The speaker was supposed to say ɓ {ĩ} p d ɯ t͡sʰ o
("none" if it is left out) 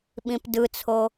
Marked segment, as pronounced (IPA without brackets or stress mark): ĩ